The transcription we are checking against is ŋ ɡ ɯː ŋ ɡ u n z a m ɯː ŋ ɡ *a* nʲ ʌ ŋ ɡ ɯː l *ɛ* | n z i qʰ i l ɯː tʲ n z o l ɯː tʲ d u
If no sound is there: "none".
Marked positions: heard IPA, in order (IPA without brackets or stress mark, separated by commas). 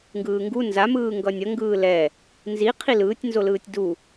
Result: ʌ, ɛ